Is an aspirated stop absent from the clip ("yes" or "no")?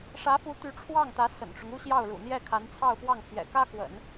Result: no